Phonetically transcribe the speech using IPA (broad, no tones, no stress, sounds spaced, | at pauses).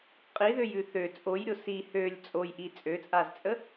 qʼ i ð ø j ʉ θ ø t͡sʼ o j ɾʲ o s i h ø lʲ t͡sʼ o j ʔ i t͡sʼ ø t͡sʼ a z t͡sʼ ə